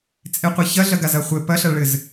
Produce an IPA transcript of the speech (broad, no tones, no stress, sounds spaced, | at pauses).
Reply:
t͡sʼ e qʷ e ç ɐ ɮ ɐ ɡ a z ɐ χʷ ɘ p ɐ ɬ ɐ ɭ ɘ z